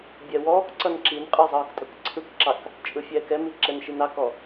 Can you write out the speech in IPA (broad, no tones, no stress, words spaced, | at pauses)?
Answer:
bʲɛwɔːkǀʌn ǁinqʼɯ zˤɤːktʼɤkǀʰɯkǁɑk | t͡ʃʼɯfʲɛːkɛmi ǁɛnʃinɑkɔ